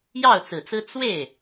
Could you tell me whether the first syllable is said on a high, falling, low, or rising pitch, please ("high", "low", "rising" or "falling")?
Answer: falling